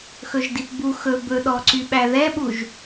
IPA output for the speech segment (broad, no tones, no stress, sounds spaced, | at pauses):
x ɵ ʒ d i p b u x ɵ b ɵ ɗ ɔ ǀ y ɓ æ ð ɛ ɓ u ʒ